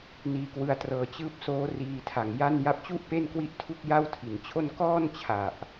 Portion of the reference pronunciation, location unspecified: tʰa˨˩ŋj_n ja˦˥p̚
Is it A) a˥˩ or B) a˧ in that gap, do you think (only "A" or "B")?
A